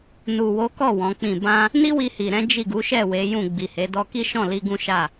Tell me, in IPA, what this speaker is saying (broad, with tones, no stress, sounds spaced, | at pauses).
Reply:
n u˨ w o˨˦ k ɔ˦˨ w ɔ̃˨˦ k͡p ĩ˦˨ b ã˧ | n i˦ w i˧ h i˨ ɾ ɛ̃˨˦ d͡ʒ i˦˨ ɡ u˨˦ ʃ ɛ˦˨ w e˨˦ j ũ˦˨ ɡ͡b i˨ h e˨˦ d ɔ˧ k i˦ ʃ ɔ̃˦˨ l i˧ ɡ ũ˦ ʃ a˦˨